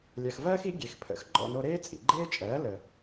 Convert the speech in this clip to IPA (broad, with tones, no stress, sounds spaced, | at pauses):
lʲ ɜ˩ x v ɜː˥ x i˩˥ ɡʲ e˩ x pʰ ə̰˩˥ x ɡ͡ǃ ɔ̰˥˩ n o˧ ɾ eː˥ t͡sʼ ḭ˩ ɡ͡ǃ eː˥ t͡ʃʼ ɜː˩˥ l ə˩